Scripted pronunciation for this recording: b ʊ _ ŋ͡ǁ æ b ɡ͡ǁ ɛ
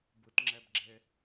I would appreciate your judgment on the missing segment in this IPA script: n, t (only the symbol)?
t